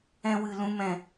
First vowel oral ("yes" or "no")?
no